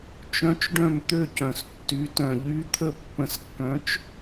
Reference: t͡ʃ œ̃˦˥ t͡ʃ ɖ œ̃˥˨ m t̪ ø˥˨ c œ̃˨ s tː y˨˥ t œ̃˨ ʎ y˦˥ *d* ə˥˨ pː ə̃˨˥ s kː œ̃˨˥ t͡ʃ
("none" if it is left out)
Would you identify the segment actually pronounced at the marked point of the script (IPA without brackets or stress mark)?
t̪ʰ